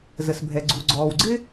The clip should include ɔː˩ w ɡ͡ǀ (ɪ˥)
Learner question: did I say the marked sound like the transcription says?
yes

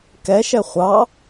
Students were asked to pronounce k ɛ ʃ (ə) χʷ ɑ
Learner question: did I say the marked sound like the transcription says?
no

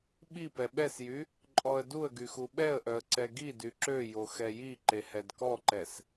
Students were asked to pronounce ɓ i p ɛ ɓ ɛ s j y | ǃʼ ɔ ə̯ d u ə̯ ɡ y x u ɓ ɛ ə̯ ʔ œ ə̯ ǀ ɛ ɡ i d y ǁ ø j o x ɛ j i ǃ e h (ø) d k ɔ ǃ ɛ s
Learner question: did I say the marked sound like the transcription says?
no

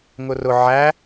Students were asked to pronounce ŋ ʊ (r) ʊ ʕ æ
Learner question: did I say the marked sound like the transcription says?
yes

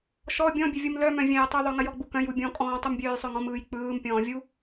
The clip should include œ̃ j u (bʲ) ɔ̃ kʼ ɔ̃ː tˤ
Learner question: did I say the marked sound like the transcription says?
yes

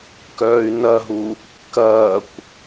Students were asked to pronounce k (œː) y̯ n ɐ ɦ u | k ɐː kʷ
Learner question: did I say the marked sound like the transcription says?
yes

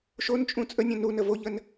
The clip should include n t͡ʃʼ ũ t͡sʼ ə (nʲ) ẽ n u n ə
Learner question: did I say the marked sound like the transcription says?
yes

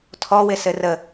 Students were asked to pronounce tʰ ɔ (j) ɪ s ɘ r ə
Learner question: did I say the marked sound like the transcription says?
no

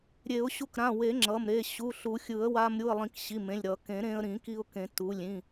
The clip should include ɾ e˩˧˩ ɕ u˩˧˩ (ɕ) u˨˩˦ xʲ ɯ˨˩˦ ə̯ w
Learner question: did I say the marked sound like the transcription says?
no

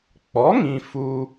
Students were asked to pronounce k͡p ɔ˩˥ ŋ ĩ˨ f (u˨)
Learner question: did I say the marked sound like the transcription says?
yes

